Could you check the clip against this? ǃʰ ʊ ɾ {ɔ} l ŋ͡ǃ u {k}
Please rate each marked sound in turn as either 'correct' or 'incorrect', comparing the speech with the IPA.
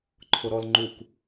correct, correct

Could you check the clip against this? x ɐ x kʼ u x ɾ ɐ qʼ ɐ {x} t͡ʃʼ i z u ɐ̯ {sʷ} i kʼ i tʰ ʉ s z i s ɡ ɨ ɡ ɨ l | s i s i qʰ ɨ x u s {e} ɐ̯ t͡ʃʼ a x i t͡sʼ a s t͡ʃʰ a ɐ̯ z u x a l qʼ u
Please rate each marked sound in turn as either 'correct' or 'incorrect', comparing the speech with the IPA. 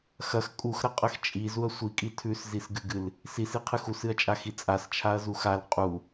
correct, correct, incorrect: ɨ

